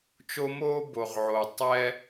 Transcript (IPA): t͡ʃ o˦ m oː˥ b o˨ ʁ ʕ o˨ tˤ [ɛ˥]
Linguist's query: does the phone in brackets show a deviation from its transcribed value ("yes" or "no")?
no